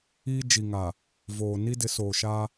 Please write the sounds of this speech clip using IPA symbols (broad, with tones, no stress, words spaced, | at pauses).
iː˦ d͡ʒi˨ŋa˨ | voː˨ ni˦dɪ˨˦soː˨ʃa˦